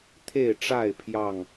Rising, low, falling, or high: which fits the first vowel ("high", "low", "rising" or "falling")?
falling